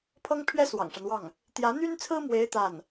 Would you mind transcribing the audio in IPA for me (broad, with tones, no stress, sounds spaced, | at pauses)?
pʰ ɤ˥ ŋ pʰ ɥ ɛ˥ s w ɑ̰˨˩ ŋ ʂ a˦ n w ɑ˥˩ ŋ | t̪ j ä˧˥ n̪ y˥ n t͡sʰ ɹ̩˥ m w e˧˥ ɪ̯ t̪ a˥˩ n